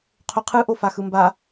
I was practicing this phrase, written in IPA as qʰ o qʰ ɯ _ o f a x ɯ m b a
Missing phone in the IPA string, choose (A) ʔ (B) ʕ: A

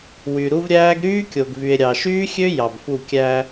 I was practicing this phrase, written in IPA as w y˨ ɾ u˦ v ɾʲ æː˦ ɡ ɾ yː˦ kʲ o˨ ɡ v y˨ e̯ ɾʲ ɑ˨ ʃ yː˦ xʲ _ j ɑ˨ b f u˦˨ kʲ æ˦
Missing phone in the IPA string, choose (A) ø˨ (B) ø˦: B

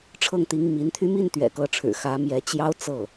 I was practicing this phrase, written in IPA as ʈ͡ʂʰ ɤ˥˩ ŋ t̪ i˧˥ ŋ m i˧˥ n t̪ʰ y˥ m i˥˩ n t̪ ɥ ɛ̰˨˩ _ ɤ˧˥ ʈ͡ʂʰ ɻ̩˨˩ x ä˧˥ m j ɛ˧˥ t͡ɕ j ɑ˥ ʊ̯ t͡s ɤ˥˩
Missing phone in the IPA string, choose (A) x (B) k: B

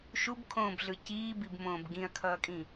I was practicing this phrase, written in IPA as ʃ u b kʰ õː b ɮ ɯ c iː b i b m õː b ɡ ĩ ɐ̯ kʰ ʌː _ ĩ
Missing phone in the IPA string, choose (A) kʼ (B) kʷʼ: A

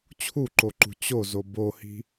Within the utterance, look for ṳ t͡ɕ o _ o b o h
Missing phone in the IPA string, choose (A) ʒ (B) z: B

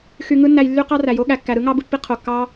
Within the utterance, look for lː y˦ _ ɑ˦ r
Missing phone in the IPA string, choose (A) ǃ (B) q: B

